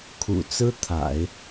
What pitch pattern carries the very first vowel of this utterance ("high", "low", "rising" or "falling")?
low